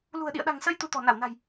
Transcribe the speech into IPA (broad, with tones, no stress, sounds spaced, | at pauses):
l ṳ˨˩ ə̯ ɗ ḭ˧˨ ə̯ ɗ a̤˨˩ ŋ s ə˧ j t̪ u˧ t̪ ɔ̤˨˩ n a˧˩ w n a̤˨˩ j